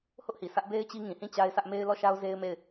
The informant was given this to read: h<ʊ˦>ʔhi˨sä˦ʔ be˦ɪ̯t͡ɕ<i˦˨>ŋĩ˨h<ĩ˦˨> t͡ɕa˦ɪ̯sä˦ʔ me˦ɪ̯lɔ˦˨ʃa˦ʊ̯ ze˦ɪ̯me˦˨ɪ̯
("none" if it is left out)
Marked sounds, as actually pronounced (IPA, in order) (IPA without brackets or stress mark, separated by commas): ʊ˦, i˦, ĩ˦˨